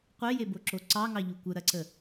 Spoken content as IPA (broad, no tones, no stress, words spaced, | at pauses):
qʷejeboǁo ǀɑŋɑʎu kʷəɾɐǀə